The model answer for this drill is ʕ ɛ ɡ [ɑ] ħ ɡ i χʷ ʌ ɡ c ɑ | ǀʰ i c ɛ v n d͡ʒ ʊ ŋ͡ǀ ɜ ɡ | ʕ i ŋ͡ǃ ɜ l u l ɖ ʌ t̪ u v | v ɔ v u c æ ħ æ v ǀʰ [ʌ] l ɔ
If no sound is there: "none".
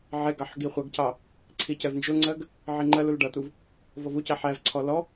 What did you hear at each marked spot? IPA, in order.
ɑ, ɔ

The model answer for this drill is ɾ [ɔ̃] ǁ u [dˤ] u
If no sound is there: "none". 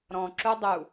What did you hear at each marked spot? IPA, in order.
ɔ̃, dˤ

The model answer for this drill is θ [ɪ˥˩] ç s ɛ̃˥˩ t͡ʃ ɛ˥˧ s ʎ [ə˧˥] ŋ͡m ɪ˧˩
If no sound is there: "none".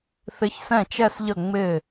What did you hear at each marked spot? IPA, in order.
ɪ˧˥, ə˥˩

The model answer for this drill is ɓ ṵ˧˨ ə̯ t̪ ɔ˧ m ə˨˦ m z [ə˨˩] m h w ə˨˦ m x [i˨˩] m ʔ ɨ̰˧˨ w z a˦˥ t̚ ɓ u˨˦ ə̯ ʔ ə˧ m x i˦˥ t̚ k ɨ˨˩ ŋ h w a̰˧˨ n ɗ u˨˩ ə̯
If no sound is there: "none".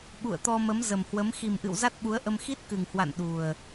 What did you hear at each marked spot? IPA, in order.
ə˨˩, i˨˩

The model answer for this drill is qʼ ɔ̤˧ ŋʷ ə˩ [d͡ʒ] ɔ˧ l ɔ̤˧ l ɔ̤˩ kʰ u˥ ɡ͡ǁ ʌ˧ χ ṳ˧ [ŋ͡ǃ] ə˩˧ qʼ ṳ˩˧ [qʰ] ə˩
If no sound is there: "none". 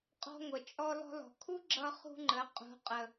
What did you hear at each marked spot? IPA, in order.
t͡ʃʼ, ŋ͡ǃ, qʼ

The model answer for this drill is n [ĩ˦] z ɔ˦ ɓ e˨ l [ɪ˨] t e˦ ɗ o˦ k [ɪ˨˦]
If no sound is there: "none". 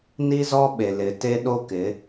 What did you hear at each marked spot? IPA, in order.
i˦, ɪ˨, ɪ˨˦

